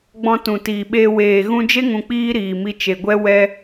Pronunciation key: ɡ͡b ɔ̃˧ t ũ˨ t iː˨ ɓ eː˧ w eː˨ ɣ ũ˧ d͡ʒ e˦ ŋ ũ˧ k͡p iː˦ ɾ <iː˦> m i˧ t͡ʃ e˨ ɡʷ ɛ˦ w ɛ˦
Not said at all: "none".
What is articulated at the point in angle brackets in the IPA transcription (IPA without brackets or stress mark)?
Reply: iː˨